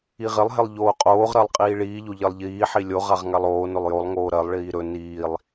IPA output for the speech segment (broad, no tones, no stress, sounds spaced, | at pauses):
i ʁ ɪ lˠ ɦ ɪ lˠ ʎ oː qʼ oː ʁ ɾ ɜ lˠ qʼ iː ɭ iː ʎ o ʎ ɜ lˠ ʎ iː ħ i lʲ o ʁ a ʁ ŋ a lˠ oː n ɵ lˠ j o lˠ ŋ oː ɾ ɜ lˠ ɭ iː ɾ ɵ n iː lˠ